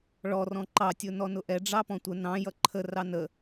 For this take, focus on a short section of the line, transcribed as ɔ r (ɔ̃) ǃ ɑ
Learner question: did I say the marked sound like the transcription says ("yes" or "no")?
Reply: yes